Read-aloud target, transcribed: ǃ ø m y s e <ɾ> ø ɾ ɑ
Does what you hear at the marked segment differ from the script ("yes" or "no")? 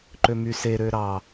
no